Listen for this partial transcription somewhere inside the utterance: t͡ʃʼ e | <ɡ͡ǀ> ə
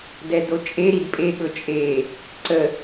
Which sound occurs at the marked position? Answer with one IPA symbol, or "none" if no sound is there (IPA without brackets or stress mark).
ǀ